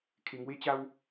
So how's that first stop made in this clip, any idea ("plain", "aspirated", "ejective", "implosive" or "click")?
aspirated